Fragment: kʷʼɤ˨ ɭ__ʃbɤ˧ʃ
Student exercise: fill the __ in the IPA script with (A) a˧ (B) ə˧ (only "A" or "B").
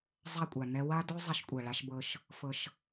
A